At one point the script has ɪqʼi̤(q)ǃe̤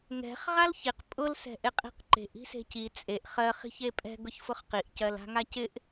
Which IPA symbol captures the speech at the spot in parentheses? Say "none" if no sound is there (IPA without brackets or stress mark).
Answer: q